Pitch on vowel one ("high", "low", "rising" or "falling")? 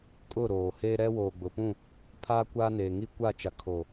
falling